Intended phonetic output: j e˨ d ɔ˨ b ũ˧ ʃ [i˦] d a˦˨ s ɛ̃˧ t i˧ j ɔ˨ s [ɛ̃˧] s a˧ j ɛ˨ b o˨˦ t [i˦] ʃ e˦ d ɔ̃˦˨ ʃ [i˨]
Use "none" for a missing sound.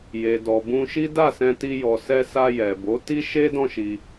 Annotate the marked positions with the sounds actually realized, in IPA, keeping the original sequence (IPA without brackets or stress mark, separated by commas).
i˦, ɛ˧, i˦, i˧